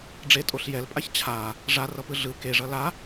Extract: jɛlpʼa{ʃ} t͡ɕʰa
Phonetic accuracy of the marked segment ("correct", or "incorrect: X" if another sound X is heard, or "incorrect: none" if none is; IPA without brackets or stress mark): incorrect: ç